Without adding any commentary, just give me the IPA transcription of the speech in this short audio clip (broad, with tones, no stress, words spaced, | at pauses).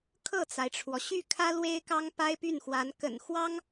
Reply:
kʰɤ˥˩t͡sa˩ɪ̯ʈ͡ʂʰwɔ˩ ɕy˥˩kʰä˥ lwe˥ɪ̯kɑ˥ŋ pa˥ɪ̯py˥˩nxwa˧˥n kə̰˨˩nxwɑ˥ŋ